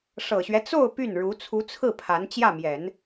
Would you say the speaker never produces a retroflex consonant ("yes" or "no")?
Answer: no